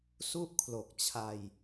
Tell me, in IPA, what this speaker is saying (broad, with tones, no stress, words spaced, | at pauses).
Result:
su˥˩ʔkʰlo˨˩k̚ t͡ɕʰa˧j